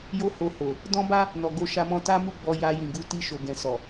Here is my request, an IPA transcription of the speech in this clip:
j o˦ h o˧ h o˨ | d ɔ̃˦ b a˦ | n ɔ˨ ɡ o˧ ʃ a˧ m ɔ̃˧ t a˦ m u˦˨ ɡ͡b ɔ˧ j a˧ j ĩ˨ ɡ u˧ t i˧ ʃ o˨ ɡ ɛ̃˨ s ɔ˨

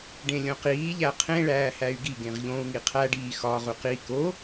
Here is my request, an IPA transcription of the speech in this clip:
ɖ ẽ lʲ õ q iː ʎ æ qʰ ẽ ɭ æː h æ y̯ ɡ i ɡ ẽ ʁ ʎ õ u̯ ŋ i qʰ æ ɖ iː x ɒ ʁ u q i k o

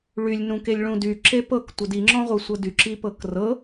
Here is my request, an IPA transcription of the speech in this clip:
ɭ y lʲ n ũ k e lʲ ɭ ũ d y ǁ e p ɤ k tʷ ə d i ŋ͡ǁ ɔ̃ ʁʷ ɤ sʷ ɤ d y ǁ i p ɤ k r ɤ

